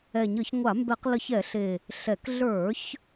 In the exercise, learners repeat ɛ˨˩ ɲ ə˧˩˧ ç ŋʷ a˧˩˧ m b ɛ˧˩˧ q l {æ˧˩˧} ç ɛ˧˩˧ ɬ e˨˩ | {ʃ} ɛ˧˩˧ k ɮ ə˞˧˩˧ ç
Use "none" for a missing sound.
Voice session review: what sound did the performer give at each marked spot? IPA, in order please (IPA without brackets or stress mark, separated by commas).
ə˧˩˧, ɬ